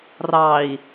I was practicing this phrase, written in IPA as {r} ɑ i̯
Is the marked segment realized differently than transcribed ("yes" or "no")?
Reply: no